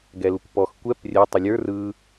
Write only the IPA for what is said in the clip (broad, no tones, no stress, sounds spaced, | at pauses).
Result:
ɡ ɛ l u kʷ p ɔ x kʷ ɛ p rʲ ɛ tˤ ɵ lʲ ə˞ r ɯ